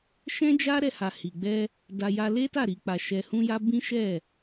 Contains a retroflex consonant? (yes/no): no